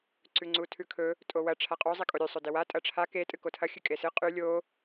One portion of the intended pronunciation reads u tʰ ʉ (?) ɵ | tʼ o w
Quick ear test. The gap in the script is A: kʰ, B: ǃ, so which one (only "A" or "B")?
A